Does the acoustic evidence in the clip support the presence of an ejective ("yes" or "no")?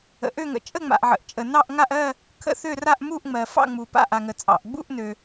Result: yes